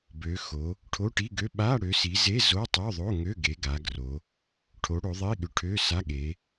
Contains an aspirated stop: yes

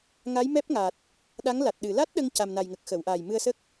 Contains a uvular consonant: no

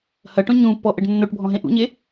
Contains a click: no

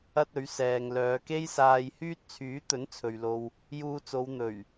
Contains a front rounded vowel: yes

